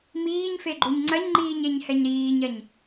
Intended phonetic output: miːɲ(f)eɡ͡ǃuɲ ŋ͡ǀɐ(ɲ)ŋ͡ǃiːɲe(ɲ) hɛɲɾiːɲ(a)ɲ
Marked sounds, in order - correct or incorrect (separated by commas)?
correct, correct, correct, incorrect